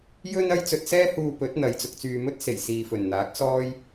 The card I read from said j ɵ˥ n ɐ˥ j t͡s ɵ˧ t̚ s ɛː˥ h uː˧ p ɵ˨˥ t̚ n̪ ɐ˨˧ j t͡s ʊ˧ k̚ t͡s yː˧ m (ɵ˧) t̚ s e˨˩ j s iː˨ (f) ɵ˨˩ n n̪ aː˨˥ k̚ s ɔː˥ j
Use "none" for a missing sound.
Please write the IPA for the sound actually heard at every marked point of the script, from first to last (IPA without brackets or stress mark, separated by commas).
ɵ˥, f